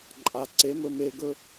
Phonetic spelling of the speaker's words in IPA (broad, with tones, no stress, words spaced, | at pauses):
ǃʼa˩ǀe˩˥mɵ˧ me˧ɡɵ˥